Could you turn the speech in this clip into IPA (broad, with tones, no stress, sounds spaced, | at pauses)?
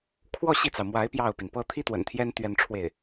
kʰ w ɔ˥˧ ɕ i˥˩ t͡s ɑ˩ ʊ̯ m w a˧˥ ɪ̯ p j ɑ˥˩ ʊ̯ p i˩ n p ɤ˥ t̪ʰ i˥ t̪ w ə̰˨˩ n t̪ʰ j ɛ˥ n t̪ ɥ ɛ˥˧ n ʈ͡ʂʰ w e˥˩ ɪ̯